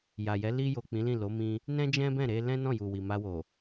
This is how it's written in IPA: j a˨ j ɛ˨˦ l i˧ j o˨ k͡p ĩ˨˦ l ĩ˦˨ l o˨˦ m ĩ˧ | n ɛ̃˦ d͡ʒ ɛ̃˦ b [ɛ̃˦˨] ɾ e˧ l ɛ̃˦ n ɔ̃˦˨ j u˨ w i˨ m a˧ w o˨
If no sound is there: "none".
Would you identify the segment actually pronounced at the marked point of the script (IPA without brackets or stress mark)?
ɛ̃˦˨